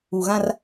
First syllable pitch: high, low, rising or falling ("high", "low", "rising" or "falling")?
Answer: low